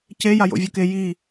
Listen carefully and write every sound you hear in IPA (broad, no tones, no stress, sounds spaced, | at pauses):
c e j a j o̰ vʲ o k e j i